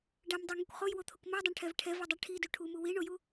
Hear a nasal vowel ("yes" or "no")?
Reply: no